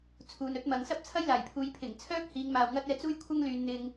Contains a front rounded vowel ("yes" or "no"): yes